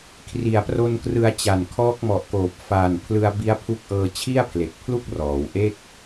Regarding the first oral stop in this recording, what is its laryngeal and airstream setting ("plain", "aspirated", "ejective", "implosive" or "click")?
aspirated